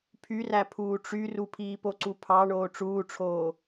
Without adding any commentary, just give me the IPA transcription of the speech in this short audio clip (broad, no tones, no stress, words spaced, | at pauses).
pʰyræ pʰuːʈ͡ʂyru pʰiːpoǀupʰɑ ɳoːʈ͡ʂuːʈ͡ʂʰoː